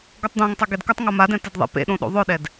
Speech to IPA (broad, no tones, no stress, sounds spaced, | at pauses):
ɡ o tˤ d̪ õ ŋ tˤ a ɡ ɛ d k ʊ tˤ ŋ o m a d ɛ̃ t ɪ d ðˤ ḛ p ḛ ɗ õ ɗ o̰ ðˤ ʊ ɗ ɛ d